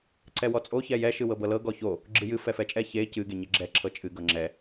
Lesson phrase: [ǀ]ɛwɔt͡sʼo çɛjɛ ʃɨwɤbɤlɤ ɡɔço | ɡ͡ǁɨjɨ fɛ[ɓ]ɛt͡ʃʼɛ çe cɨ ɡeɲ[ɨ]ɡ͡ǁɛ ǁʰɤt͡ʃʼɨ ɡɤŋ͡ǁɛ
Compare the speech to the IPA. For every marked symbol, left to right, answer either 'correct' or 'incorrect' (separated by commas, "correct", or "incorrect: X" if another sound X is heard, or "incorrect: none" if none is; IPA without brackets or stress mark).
correct, incorrect: f, incorrect: e